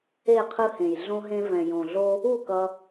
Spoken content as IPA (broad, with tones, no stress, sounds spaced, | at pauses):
e˦˨ qʰ ɯ˦ h ẽ˨ j ɮ õ˦ ɦ ẽ˦ v ɛ̃˨ j õ˨ ɮ o˦ | u˦˨ k ʌ˦